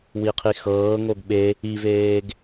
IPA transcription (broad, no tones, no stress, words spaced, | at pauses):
wiqʰixɤːŋoɡ ɓe | iveːɡ